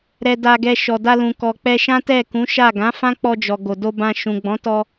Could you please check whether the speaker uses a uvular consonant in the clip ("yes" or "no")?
no